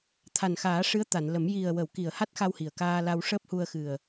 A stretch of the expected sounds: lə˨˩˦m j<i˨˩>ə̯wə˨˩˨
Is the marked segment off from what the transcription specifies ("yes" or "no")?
no